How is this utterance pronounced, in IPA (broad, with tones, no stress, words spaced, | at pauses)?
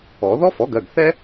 ɔ˨˩˦ ðɔ˥fɔ˩˥ɡɜ˩˧˩ɡ θɛ˥